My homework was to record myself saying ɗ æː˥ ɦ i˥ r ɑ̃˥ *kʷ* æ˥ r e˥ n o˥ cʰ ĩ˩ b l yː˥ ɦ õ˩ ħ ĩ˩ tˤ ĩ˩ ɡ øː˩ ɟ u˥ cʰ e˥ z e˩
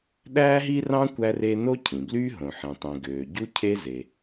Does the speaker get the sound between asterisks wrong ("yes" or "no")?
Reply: no